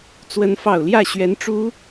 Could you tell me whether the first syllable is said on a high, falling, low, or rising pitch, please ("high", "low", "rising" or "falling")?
rising